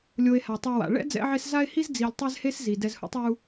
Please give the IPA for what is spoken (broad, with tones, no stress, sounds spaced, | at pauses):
lʲ o˨ e̯ h a˩ tˤ u˨ w a̰˩ ɭ ɛ̰˥ d͡z ɛ̰˦ ʕ e˦ s z a˦ e̯ h i˦ z d͡z i˨ lʲ tˤ ɛ˦ z h e˦ s z i˩ d ɛ˦ z h ṵ˥ tˤ u˦